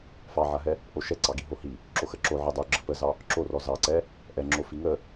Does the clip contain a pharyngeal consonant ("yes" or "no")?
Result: yes